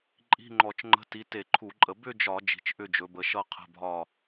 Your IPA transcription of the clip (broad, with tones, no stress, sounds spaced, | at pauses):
ǃʼ i̤˧˥˧ ŋ͡ǃ ɔ˧˩˧ t͡ʃ ŋ͡ǃ ə̤˧˥˧ t i˨˦ t e˧˩˧ ǃʰ u˧˩˧ ǃʼ ə˧˩˧ b ʏ˥˧ d͡ʒ ɒ˧˩˧ d͡ʒ i̤˨˦ t͡ʃ ʔ ʏ˥˧ d͡ʒ ɵ˨˦ b ə˨˦ ʃ ʌ˥˧ qʰ ə̤˧˥˧ bʱ ɒ˥˧